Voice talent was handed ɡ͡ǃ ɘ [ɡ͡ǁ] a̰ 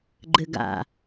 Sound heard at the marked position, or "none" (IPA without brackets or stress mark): ɡ